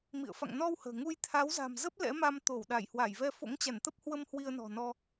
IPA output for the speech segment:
m ḭ˧˨ ə̯ f a̰˧˨ ŋ n ɔ˧ w h ə̤ː˨˩ ŋ u˧ j t̪ʰ a˨˦ w z a̤˨˩ m z ə˦˥ p̚ l ɛ̰˧˥ m a˧ m t̪ o˧˩ w ɗ a˧˩ j h w a˧˩ j v ɛ˧ f o̰˧˥ ŋ t͡ɕ a˧˩ n t̪ ə˦˥ p̚ h w ə˧ m h w i˧ ə̯ n ɔ̤˨˩ n ɔ˧

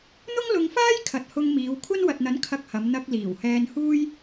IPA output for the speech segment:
n̪ ʊ˥ ŋ l ʊ˧ ŋ f aː˥ j kʰ ɐ˨ t̚ h ʊ˧ ŋ m iː˨˧ w kʷʰ ɐ˥ n w ɐ˨ t̚ n̪ ɐ˨˥ n kʰ ɐ˧ k̚ h ɐ˨˧ m n̪ ɐ˧ k̚ l iː˨˩ w h ɛː˧ n h uː˥ j

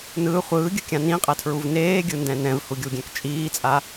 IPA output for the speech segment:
n ɯː χʷ ɯː ɡʲ ɯ kʲ ã n ĩ qʼ ɛ tʰ ɹ u v n eː ɡʲ ɯ n d ɛ̃ n ɛ̃ v h u ɡʲ u ɡʲ ɛ̃ k t͡ʃʼ iː t͡sʼ a

